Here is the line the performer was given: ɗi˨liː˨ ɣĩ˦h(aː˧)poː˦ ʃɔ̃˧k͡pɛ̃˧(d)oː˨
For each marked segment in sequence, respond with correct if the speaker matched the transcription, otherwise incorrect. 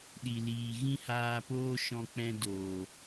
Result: correct, correct

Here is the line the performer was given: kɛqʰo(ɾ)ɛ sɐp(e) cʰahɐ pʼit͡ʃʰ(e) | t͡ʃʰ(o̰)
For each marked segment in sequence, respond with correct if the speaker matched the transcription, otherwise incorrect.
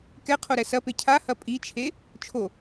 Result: correct, correct, correct, incorrect

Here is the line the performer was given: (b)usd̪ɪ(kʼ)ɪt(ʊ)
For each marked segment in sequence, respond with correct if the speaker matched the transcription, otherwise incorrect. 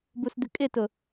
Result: correct, correct, correct

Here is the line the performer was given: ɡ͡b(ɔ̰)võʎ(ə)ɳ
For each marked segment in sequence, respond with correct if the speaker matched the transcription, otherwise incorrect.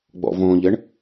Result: correct, correct

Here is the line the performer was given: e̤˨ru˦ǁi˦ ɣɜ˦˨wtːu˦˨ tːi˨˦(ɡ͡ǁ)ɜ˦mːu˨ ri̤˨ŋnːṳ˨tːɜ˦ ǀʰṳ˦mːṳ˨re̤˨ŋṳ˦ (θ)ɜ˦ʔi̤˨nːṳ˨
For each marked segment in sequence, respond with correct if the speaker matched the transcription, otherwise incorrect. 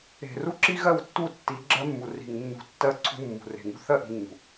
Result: correct, correct

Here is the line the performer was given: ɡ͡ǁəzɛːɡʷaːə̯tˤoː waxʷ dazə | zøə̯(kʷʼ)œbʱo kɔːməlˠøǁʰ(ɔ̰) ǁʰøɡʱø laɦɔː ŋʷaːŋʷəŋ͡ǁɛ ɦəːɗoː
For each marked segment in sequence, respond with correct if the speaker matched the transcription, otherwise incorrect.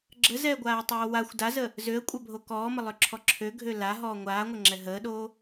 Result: correct, incorrect

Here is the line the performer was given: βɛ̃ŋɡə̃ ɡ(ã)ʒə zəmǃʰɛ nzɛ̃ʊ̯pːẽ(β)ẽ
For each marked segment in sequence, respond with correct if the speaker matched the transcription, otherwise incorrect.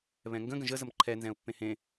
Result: incorrect, incorrect

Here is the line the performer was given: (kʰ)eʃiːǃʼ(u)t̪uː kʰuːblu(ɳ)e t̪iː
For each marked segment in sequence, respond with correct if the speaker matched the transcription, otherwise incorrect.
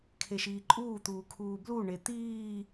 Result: correct, incorrect, correct

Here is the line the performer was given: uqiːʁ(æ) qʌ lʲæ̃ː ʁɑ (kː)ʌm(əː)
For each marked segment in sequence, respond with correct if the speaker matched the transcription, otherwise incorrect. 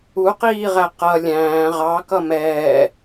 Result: correct, incorrect, incorrect

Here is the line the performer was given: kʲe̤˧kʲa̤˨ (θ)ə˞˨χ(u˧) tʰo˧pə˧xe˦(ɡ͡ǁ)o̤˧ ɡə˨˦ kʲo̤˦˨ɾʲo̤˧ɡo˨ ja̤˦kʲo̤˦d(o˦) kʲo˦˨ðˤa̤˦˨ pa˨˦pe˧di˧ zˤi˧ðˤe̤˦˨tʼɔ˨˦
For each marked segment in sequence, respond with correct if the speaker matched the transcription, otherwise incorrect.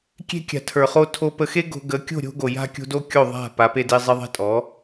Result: incorrect, incorrect, incorrect, correct

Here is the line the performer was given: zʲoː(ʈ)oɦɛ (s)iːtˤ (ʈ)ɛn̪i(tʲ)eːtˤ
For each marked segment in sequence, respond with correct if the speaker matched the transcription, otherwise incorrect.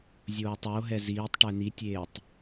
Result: incorrect, incorrect, correct, correct

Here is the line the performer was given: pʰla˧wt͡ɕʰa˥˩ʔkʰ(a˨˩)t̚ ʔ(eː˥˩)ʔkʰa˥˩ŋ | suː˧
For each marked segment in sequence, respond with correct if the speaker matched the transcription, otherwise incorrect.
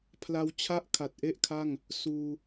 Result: correct, incorrect

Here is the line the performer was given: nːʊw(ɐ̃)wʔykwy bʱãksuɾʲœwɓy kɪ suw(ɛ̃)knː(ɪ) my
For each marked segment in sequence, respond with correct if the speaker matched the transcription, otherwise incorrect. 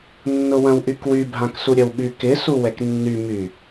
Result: correct, incorrect, incorrect

